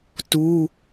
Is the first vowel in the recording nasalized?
no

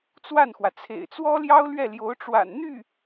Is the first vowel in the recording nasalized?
no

